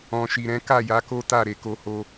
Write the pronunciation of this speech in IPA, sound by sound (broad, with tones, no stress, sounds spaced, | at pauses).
ɔ̃˨ ʃ i˨ ɾ ɛ̃˨˦ k a˦˨ j a˨˦ k o˦ t a˦˨ ɾ e˨˦ k o˦ h o˦